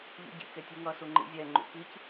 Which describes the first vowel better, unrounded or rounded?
rounded